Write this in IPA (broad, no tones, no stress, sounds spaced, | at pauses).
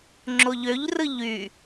ŋ͡ǁ o ʎ ø ʎ r ɯ ʎ y